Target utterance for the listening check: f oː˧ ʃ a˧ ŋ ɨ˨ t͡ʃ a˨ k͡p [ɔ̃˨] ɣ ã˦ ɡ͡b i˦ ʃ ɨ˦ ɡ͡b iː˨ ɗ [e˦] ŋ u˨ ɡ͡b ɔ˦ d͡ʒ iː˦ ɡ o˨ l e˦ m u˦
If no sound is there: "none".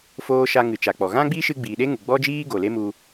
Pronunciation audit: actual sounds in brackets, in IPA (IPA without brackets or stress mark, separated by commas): ɔ˨, e˦